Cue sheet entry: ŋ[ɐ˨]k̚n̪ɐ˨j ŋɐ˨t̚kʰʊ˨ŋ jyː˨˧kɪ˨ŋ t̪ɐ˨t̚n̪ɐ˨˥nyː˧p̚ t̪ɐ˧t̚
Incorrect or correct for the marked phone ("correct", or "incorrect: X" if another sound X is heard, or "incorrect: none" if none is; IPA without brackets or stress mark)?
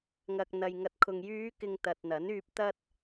correct